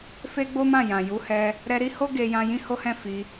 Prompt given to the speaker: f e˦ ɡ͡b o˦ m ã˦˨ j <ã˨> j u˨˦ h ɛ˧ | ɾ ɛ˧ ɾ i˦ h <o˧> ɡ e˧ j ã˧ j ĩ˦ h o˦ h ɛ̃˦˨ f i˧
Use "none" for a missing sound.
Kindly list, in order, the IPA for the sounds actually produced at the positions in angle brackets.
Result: ã˨, o˦

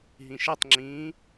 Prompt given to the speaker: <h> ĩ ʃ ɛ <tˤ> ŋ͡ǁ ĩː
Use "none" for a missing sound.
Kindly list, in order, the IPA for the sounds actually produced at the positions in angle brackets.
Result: ɦ, tˤ

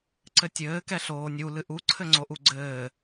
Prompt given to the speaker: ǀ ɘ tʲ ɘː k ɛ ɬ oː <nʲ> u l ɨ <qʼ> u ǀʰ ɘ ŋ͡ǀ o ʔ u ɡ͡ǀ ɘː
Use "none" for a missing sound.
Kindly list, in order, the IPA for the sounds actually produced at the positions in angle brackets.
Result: nʲ, ʔ

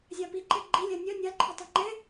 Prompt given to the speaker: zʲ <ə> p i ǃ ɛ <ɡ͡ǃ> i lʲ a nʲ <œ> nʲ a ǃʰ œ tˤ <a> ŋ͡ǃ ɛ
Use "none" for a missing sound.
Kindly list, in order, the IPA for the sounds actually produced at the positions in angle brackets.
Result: a, ɡ͡ǃ, œ, a

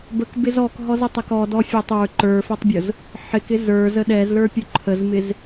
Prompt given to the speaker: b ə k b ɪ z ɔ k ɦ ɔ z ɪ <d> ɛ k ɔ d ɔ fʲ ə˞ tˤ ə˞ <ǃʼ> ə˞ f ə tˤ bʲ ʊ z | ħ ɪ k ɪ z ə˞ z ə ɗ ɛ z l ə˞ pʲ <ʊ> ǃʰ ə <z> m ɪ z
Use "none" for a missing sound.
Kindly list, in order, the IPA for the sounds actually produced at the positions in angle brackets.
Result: tˤ, ǃ, ʊ, z

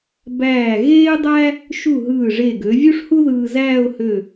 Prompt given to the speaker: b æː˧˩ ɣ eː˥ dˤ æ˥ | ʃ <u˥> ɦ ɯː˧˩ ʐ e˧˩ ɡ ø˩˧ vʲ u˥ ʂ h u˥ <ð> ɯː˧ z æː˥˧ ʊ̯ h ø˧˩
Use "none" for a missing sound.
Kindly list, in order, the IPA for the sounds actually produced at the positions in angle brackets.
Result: u˧˩, ð

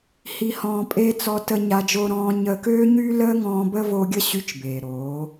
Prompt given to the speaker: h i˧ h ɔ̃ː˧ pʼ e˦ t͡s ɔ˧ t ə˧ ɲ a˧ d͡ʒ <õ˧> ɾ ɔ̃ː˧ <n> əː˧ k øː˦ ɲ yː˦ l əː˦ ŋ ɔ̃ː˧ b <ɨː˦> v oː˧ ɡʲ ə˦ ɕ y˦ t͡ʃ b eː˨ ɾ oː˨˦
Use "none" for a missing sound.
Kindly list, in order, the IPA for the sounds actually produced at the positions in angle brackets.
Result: o˧, ɲ, əː˦

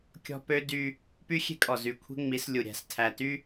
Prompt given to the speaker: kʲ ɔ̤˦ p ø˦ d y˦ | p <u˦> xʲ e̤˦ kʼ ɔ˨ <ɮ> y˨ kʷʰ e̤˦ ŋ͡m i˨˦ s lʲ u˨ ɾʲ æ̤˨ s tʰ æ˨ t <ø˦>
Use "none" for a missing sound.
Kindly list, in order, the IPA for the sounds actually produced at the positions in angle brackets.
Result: y˦, z, y˦

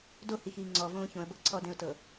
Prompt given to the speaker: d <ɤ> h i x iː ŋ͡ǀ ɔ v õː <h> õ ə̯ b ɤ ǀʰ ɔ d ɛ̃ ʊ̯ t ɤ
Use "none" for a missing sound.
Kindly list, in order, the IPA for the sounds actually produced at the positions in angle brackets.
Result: o, ç

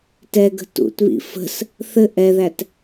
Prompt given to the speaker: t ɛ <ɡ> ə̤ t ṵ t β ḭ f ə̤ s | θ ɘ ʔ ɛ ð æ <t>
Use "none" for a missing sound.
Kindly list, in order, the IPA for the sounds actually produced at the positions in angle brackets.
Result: ɡ, t

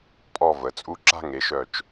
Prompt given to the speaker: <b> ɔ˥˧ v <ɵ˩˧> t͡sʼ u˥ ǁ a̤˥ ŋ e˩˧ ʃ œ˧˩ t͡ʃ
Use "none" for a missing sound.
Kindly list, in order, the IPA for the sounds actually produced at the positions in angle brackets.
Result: pʼ, ə˩˧

